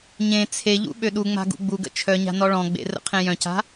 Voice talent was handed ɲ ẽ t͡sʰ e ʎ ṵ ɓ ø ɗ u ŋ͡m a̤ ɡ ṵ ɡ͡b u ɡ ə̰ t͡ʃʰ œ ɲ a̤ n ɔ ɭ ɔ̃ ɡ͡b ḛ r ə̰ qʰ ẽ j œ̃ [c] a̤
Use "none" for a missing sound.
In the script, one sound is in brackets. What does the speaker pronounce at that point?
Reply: c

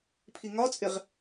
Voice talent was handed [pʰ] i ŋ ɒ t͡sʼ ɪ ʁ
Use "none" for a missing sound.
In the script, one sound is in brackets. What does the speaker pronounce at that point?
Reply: pʰ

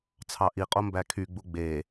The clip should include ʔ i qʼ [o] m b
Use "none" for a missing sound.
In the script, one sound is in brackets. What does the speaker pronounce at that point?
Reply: o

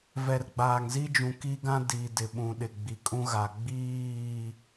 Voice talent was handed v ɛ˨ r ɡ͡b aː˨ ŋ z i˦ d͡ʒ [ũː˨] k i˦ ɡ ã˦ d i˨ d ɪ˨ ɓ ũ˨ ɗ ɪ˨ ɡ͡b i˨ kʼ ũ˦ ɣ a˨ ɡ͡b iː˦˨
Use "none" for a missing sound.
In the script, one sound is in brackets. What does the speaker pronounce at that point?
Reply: ũ˨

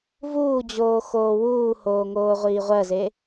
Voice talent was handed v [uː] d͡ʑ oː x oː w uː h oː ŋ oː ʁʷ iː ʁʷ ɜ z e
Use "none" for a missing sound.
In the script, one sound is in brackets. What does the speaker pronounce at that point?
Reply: uː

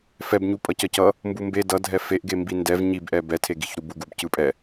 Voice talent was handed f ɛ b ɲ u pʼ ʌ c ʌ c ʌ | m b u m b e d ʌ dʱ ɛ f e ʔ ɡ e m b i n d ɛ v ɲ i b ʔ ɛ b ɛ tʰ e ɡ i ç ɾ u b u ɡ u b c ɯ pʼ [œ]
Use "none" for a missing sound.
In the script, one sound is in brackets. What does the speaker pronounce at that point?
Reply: ɛ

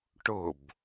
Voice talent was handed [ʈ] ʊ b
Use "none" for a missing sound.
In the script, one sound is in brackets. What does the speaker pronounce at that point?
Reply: ʈ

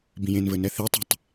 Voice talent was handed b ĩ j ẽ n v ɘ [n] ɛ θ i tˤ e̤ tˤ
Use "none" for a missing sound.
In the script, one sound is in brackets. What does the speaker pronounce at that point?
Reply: n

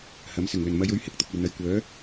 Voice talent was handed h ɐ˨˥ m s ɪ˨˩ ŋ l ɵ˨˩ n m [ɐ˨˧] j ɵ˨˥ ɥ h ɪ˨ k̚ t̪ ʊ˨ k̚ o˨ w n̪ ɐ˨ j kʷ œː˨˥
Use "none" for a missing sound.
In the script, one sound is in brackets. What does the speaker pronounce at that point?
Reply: ɐ˨˧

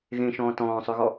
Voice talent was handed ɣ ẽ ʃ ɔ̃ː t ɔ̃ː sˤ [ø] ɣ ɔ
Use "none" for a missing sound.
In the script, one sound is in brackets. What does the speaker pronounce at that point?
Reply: ø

